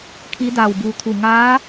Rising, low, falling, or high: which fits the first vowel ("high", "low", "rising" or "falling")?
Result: rising